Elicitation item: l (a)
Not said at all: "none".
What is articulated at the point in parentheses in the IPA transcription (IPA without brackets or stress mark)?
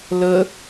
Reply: ə